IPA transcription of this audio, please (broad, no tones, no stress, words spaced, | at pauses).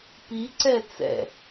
piǀɛ t͡sɛ̰